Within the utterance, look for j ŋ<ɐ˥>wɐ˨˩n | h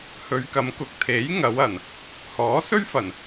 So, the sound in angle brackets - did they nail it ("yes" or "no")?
no